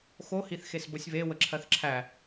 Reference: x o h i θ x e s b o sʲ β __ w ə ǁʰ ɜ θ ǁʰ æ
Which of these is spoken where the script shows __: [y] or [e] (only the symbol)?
e